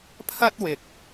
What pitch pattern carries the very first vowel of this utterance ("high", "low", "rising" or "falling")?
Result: high